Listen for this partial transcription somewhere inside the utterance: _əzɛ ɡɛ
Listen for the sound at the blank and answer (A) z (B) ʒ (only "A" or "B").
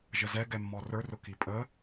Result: B